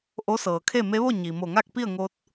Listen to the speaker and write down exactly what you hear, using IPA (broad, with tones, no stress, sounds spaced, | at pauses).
ʔ o˧˥ s ɤː˩ kʰ e˥˨ m e˧˥ ʋ o˥˨ ɲ i˩ m o˧˩ ŋ a˥˨ k̚ p i˥˨ ə̯ ŋ o˧ t̚